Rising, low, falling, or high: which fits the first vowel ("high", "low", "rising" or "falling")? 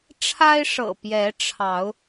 high